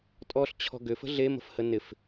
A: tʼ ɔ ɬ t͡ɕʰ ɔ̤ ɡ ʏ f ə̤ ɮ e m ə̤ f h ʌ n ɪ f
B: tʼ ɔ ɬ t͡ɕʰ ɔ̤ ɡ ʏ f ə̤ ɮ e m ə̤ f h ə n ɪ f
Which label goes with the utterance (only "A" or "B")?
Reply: B